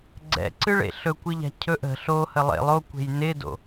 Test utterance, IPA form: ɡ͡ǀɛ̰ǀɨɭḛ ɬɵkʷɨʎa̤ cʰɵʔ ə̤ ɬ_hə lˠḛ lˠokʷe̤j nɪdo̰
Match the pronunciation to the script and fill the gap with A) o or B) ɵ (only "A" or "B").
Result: A